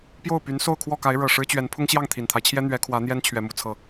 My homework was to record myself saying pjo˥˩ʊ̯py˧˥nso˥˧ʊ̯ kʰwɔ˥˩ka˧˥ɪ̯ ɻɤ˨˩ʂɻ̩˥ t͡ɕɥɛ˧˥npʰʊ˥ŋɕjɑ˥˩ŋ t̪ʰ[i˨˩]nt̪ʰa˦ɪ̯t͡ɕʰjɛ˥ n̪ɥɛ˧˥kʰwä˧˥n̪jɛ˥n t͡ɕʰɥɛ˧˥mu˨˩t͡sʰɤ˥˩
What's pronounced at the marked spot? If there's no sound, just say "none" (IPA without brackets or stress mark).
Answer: i˨˩